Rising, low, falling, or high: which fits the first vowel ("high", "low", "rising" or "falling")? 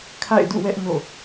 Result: falling